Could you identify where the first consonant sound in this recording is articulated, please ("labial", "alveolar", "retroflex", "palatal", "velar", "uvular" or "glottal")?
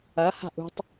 glottal